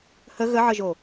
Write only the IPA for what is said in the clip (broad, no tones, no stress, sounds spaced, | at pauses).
h ə ɣ ə ʕ ə ʒ o